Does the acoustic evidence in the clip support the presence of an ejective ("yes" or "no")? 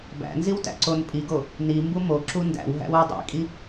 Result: yes